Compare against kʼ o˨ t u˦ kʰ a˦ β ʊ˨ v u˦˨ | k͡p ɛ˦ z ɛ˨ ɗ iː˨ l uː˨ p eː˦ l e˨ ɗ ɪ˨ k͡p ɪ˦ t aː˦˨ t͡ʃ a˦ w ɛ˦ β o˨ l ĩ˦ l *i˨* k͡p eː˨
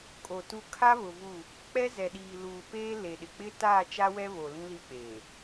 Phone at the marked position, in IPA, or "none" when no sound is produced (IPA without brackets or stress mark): i˦˨